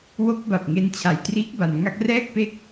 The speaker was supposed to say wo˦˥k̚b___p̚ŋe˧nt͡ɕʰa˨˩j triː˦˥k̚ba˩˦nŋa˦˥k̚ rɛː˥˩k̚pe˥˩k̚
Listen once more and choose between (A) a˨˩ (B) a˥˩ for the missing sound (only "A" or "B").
A